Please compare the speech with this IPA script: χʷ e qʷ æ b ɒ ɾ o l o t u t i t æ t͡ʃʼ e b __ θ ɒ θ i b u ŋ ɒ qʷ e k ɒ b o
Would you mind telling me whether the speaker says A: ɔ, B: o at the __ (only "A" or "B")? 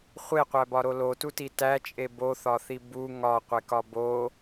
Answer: B